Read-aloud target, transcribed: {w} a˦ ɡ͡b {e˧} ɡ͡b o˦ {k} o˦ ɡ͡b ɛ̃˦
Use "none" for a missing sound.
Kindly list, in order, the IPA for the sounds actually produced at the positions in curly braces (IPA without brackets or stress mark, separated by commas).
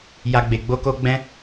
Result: j, e˧, k